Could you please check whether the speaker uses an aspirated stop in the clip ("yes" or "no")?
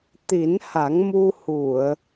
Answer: no